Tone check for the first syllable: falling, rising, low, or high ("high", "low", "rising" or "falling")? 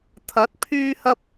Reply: rising